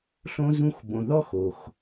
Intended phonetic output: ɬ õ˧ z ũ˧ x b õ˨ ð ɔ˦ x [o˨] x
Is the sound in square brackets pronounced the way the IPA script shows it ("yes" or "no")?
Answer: yes